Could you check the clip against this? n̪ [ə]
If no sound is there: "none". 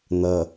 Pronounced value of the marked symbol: ʌ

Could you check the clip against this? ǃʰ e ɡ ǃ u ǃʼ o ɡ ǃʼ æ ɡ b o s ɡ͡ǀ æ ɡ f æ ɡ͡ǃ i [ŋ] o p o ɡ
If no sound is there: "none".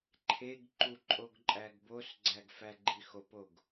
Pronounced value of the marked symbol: x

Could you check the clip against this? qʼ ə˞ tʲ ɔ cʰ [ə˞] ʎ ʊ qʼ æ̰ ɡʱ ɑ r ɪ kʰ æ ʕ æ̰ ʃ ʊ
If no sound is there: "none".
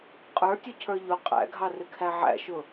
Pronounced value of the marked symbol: ə˞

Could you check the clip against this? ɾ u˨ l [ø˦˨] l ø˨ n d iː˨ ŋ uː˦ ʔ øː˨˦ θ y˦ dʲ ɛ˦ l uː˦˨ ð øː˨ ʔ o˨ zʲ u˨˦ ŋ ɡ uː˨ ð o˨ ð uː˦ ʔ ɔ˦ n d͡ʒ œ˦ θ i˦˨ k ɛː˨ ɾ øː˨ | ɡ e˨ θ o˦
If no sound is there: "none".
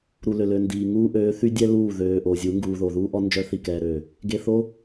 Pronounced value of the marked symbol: ø˨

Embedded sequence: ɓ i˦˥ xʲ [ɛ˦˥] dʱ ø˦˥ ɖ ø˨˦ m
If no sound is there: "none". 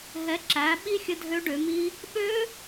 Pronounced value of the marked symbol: ə˦˥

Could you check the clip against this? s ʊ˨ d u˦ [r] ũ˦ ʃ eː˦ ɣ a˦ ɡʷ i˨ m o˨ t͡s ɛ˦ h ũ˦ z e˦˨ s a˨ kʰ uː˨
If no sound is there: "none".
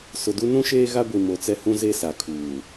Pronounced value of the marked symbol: n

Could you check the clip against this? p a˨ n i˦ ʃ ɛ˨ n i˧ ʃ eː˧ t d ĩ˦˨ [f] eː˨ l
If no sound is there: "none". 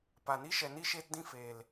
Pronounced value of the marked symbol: f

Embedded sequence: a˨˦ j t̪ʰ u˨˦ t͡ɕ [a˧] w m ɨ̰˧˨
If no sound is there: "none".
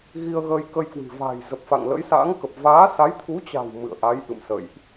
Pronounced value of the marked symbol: a̤˨˩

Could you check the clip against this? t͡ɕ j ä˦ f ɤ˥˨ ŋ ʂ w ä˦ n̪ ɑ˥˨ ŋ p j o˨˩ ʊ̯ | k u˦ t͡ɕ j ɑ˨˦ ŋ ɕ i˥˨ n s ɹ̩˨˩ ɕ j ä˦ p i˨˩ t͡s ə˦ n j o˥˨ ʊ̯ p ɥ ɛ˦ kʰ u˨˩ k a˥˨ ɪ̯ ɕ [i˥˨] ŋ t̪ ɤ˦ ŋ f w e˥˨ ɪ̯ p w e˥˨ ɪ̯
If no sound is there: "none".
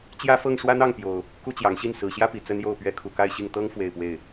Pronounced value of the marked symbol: i˥˨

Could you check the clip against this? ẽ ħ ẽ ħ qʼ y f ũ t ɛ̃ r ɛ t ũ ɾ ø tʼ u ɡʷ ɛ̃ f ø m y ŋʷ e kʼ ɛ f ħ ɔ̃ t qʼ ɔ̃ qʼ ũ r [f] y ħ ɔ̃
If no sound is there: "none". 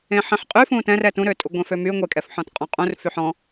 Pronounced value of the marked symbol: f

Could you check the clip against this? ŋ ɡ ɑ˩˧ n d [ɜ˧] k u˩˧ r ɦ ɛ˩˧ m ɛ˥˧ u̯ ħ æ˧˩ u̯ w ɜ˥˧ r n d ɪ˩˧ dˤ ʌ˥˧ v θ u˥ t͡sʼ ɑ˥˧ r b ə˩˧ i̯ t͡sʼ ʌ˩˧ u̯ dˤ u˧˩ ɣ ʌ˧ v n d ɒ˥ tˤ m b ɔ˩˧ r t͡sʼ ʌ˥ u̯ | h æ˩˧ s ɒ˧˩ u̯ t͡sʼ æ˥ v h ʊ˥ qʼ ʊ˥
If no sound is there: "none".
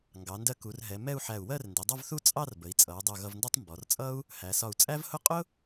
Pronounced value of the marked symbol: ɜ˧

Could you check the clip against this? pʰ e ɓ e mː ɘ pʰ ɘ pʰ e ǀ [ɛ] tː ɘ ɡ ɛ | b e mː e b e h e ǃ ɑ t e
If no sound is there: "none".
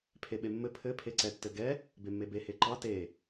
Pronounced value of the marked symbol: ɛ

